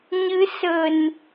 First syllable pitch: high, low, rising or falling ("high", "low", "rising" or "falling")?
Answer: rising